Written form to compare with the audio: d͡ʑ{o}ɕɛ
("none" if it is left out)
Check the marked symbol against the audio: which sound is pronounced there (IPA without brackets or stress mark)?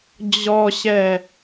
ɔ